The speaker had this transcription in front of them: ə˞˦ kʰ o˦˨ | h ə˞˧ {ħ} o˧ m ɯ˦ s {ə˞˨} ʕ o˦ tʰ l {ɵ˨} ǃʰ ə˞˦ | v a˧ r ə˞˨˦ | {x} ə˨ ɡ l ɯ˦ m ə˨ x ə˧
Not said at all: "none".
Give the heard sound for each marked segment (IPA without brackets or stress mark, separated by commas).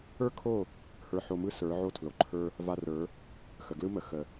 ħ, ə˞˨˦, o˨, x